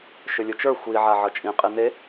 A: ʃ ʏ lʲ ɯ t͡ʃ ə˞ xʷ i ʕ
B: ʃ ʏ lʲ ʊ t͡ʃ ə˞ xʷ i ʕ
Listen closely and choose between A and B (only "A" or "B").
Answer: A